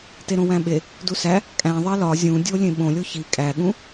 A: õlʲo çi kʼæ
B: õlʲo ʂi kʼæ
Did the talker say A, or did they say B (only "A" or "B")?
A